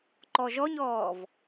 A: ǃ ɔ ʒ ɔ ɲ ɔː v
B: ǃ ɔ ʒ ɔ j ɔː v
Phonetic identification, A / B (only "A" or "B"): A